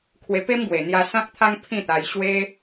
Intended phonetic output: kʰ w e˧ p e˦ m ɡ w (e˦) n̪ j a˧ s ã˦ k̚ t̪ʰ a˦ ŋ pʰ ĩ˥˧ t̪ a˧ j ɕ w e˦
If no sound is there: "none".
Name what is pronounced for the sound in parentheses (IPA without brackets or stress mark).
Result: e˨˩